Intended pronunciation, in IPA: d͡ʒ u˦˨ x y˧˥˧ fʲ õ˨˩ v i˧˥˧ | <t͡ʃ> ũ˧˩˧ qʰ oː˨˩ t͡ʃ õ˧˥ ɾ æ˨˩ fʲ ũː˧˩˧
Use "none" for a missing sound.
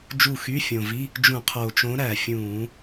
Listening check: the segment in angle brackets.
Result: d͡ʒ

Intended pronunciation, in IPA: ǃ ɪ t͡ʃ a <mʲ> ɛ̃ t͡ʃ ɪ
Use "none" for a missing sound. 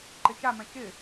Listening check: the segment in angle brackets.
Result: m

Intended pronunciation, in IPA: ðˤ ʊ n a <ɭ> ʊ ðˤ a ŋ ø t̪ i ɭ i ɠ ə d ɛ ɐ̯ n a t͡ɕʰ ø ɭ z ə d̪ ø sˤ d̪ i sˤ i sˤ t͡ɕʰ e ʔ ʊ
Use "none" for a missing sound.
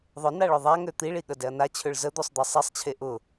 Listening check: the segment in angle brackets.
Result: ɭ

